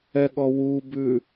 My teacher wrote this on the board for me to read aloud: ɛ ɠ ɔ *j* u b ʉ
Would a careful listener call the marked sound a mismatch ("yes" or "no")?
yes